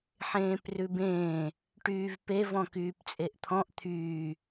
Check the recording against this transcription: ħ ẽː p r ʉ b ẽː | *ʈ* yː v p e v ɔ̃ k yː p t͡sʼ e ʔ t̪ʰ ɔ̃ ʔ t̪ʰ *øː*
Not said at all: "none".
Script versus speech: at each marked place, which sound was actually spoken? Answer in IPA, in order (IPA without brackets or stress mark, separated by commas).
ʈ, yː